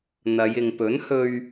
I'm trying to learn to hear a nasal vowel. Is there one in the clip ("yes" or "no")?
no